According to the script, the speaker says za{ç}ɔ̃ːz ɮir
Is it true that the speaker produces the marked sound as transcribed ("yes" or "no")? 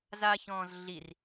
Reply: yes